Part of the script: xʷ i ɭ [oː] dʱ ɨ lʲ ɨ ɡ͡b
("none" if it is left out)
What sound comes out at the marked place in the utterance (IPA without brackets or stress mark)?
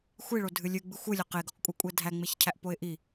o